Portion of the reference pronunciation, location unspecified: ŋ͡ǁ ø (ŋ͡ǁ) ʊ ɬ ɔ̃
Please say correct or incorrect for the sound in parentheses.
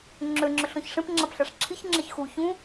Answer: correct